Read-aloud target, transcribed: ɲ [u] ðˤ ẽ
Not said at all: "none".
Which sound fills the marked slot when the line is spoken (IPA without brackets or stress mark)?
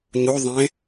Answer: u